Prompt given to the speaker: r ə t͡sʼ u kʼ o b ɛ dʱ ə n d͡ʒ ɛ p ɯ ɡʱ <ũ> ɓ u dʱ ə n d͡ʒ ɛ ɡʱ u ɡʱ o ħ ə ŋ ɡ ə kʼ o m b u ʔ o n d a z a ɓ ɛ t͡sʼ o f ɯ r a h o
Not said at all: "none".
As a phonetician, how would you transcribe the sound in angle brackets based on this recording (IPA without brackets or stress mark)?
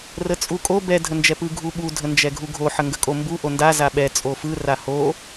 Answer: u